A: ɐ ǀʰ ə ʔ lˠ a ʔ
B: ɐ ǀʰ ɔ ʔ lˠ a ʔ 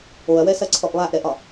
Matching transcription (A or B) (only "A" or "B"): B